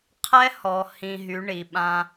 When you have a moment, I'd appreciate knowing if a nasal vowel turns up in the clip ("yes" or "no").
yes